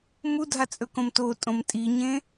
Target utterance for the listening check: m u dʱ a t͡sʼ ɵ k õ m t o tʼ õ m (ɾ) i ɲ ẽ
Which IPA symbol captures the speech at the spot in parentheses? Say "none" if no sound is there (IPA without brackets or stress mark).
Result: tʼ